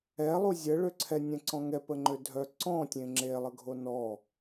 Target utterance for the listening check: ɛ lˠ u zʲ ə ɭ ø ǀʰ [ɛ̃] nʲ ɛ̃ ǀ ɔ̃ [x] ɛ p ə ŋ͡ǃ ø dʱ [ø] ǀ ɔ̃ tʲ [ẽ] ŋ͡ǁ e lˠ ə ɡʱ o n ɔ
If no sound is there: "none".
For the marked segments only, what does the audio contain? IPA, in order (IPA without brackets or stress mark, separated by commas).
ɛ, ŋ, œ, ẽ